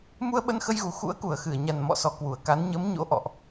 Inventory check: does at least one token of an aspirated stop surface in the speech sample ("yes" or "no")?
no